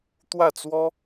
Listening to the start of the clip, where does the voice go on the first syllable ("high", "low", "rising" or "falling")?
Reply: falling